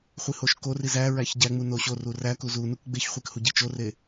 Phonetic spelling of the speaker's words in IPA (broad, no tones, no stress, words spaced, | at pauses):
χʷihoʃkori zæ ɹæçɟæŋ͡mu noɕoru ræ kuzunuk ɡ͡beçχʷik huɟit͡ʃore